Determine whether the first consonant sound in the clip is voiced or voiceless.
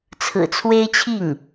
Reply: voiceless